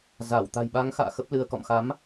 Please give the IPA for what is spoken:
z a˧˩ w t̪ a̤˨˩ j ɓ a˨˦ ŋ x a̰ː˧˨ x ə˦˥ p̚ l ɨ˧ ə̯ k ɔ̰˧˨ m x a˨˦ m

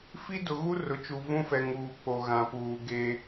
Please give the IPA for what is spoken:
f i˦ d ʊ˨ ɣ u˦ r ʊ˨ t͡ʃ u˨ v ũ˦ f ɛ˨ ŋ uː˨ k͡p o˨ ɣ ã˨ p uː˨ ɡ e˦

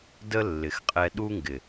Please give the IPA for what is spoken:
d ə˦ lː ɪ˨ x qʼ ɛ˧ ɗ u˦ ŋ ɡ ɪ˨

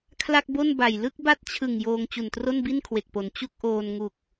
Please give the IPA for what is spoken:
kʰ l a˥˩ k̚ b o˥˩ n b a˨˩ j l ɯ˥˩ k̚ b a˥˩ t̚ t͡ɕʰ ɯ˨˩ ŋ j oː˧ ŋ t͡ɕ u˨˩ n t r o˥˩ n b i˥˩ n kʰ w e˨˩ k̚ p o˩˦ n t͡ɕ u˥˩ k̚ ʔ oː˧ n ŋ u˨˩ k̚

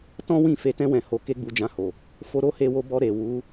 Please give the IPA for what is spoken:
t ɔ̃˦ w ĩ˦˨ f e˧ t ɛ̃˦ w ɛ̃˧ h o˧ k e˦ ɡ͡b u˧ d͡ʒ ã˧ h o˨ | f o˧ ɾ o˦ h e˧ w o˧ b ɔ˧ ɾ e˨ w u˨˦

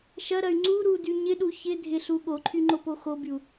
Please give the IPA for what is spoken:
ʃ ɐ ɾ ɐ y̯ ŋ͡ǀ u ɾ u d y ɲ ɪ ɗ u ç ɪ dʱ ɪ ɬ u ɠ o ǃʰ y ŋ͡ǃ o p o x o b y u̯

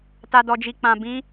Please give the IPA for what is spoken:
t a˨ d ɔ˨ d͡ʒ i˨ k͡p ã˨ b ĩ˨˦

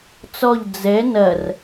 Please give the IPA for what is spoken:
t͡s ɔ ʎ d͡z ɛ n ɐ r

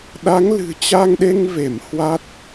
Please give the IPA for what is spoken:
ɗ a˨˦ ŋ l ɨ̤˨˩ t͡ɕ a˧ ŋ ɗ e˧ ŋ v e˧˩ m h w a˦˥ t̚

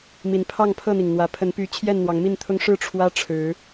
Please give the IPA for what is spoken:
m i˨˦ n pʰ ɑ˥˨ ŋ pʰ ɤ˥˨ n̪ i˩ ŋ n̪ w ä˨˩ pʰ ə˨˦ n p y˨˦ t͡ɕʰ j ɛ˥˨ n n̪ w ɑ˨˦ ŋ m i˥˨ n t̪ʰ ʊ˦ ŋ ʂ ɻ̩˥˨ ʈ͡ʂʰ w ä˦ ʈ͡ʂʰ ɻ̩˨˦

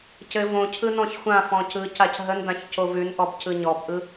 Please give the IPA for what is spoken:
c ɘ v õ cʰ ɯ n ɔ̃ ç xʷ ã f ɔ̃ c ɯ c a c ɦ ə n d ã ç c o v ʉ n ʔ ɔ b c ɯ ɲ ɔ b ʔ ɯ

